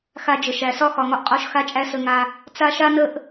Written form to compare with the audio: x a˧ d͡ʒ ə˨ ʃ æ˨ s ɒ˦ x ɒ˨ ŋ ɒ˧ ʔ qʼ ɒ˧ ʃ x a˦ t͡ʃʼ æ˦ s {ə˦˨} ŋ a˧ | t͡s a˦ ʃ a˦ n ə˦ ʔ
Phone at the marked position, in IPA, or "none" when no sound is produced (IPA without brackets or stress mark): ə˧